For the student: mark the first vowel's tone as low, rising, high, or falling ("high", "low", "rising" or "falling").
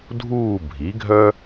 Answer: falling